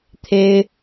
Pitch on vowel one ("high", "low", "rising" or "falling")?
high